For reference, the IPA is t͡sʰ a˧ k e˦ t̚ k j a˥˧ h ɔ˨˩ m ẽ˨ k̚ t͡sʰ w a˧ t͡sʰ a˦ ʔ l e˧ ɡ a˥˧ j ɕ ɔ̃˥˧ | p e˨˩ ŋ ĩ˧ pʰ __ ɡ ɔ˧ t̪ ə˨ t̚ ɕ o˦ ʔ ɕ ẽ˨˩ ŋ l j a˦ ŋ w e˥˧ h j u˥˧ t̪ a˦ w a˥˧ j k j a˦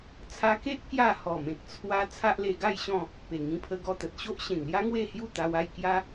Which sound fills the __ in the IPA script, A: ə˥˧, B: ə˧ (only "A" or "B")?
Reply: B